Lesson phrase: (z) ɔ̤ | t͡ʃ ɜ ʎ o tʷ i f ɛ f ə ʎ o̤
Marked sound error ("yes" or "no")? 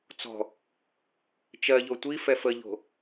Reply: yes